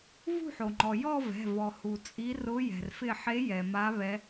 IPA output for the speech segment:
vṳ˥˧ħo˩ŋ͡ǃɔ˩ jɔ˥˧vɛ̤˩˧˩ vɔ˩ hu˩t͡sʼi˨˦ rʊ˨˦ jɛ̤˩rfɪ˧˩ħe˨˦ jɛ˩ma˨˦ βɛ˨˦

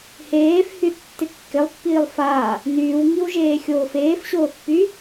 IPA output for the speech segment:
heːfhyθ tːɪkːɪlˠpːiːlˠ faː | nyːwŋiw ʒeːxʲoːfeːfɕoːθ py

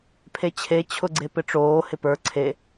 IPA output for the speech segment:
pʰet͡ɕʰe t͡ɕʰʊɡ͡ǀepɪʈ͡ʂoː hɪpə˞ ǀʰe

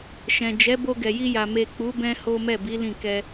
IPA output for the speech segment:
ʃɛ̃˨ d͡ʒɛ˨˦ bo˧ɡɛ˨ji˧ja˨ me˨k͡pu˨˦bɛ̃˧ ho˦mɛ˦˨bi˨˦lĩ˦˨ kɛ˧

